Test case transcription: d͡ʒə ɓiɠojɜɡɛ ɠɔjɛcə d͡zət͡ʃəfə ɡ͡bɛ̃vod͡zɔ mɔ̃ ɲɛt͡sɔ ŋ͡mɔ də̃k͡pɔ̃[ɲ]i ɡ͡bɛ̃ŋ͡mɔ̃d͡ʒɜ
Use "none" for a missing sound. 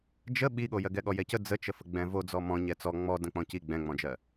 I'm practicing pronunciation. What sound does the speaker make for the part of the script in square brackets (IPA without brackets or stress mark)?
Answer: c